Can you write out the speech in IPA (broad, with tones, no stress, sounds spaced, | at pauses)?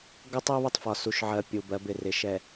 ɡ ʌ˦ tˤ ɛ˦ β ʌ˦ tˤ f ɒ˨ s u˨ ʃ ʕ ɜ˨ pʲ u˨ b ɜ˨˦ b ɪ˨ r ɪ˨ ʃ ɛ˨